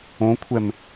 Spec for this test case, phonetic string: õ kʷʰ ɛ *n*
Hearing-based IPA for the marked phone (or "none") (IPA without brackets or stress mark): m